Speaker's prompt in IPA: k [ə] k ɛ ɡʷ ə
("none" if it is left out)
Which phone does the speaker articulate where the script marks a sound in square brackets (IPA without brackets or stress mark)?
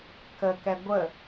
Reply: ə